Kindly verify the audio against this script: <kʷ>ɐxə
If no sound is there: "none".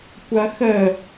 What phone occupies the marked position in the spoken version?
kʷ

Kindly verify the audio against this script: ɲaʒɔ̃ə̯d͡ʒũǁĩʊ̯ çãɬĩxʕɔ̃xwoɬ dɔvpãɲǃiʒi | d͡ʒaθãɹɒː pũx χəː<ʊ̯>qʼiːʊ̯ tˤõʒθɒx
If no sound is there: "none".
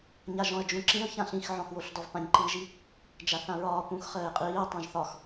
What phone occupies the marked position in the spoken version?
ɪ̯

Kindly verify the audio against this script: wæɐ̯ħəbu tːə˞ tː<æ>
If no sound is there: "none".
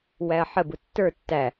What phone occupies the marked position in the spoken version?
æ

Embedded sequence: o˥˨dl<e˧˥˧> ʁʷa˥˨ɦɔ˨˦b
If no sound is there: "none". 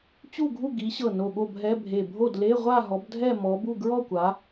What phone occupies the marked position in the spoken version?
e˧˥˧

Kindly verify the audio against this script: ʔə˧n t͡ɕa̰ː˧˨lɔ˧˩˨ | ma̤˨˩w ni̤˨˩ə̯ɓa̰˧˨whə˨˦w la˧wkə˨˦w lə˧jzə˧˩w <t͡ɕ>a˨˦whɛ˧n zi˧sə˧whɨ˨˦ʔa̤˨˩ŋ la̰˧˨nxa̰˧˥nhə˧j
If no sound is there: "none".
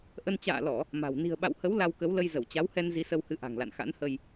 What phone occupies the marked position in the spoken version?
t͡ɕ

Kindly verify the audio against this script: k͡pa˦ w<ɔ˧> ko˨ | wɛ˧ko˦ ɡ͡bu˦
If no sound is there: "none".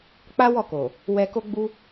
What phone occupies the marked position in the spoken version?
ɔ˦˨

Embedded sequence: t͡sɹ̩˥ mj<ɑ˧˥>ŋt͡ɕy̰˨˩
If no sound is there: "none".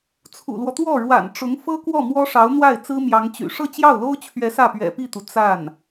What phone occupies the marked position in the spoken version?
ɑ˧˥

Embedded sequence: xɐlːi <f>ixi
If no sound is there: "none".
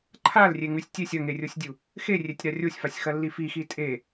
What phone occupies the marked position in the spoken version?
f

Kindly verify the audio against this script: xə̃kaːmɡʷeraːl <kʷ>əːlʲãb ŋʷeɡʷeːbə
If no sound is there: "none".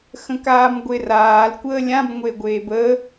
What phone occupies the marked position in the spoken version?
kʷ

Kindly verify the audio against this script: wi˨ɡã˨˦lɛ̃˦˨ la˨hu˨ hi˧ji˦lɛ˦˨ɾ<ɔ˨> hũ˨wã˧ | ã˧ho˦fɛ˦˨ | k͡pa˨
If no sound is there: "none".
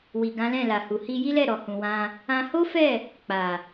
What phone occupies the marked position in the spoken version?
ɔ˨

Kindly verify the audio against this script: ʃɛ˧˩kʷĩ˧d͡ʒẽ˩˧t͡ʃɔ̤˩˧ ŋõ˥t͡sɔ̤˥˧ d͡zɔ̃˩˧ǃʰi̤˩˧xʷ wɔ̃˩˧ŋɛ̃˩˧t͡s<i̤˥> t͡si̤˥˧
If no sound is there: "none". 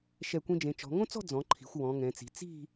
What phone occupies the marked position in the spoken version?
i̤˩˧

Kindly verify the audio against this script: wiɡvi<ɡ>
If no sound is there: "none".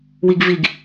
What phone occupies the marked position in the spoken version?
ɡ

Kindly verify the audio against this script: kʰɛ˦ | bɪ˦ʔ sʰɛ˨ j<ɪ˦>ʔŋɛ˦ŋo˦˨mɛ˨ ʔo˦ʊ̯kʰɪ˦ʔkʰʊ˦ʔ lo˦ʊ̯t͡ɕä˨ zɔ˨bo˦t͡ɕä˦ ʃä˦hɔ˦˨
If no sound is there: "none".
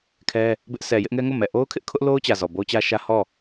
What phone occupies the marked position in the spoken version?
ɪ˦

